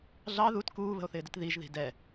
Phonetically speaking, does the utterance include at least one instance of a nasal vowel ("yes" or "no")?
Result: no